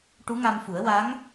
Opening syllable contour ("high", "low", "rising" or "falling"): rising